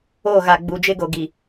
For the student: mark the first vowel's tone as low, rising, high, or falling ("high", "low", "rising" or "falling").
falling